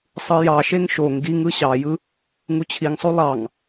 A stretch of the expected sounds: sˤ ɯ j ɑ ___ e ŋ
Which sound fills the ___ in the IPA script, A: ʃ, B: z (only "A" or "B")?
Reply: A